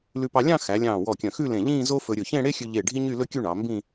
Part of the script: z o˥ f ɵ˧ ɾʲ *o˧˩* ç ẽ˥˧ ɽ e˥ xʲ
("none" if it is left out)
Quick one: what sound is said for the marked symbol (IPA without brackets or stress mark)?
ɵ˧˩